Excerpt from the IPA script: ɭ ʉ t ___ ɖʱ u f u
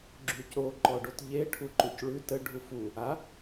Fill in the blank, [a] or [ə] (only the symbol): ə